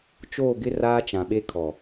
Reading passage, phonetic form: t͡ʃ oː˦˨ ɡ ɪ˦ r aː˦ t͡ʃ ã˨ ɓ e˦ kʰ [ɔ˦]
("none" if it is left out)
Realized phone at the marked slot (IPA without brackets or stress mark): ɔ˨